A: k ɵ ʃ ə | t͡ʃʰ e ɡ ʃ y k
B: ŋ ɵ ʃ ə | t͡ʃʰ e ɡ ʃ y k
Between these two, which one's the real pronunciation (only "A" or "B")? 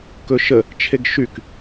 A